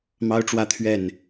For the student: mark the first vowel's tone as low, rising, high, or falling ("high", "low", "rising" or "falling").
high